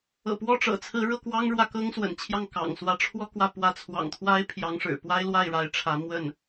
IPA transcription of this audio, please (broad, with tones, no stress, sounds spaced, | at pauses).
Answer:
ɤ̰˨˩ p w ɔ˥˩ ʈ͡ʂ ɤ̰˨˩ t͡sʰ ɹ̩˧˥ ɻ ɤ˥˩ k w ɑ˥ ŋ ɻ w ä˥˩ k ɤ˥ ŋ s w ə̰˨˩ n t͡ɕʰ j ɑ˥˩ ŋ k ɑ̰˨˩ ŋ s w ä˥ ʈ͡ʂʰ w ɔ˥˧ k w ä˥˩ p w ä˧˥ t͡sʰ w ɑ̰˨˩ ŋ t̪ʰ w a˥ ɪ̯ pʰ j ɑ˧˥ ŋ ʂ ɻ̩˨˩ p w a˥ ɪ̯ l w a˥˩ ɪ̯ ɻ a˧˥ ɪ̯ ʈ͡ʂʰ ä˧˥ m w ə˥˩ n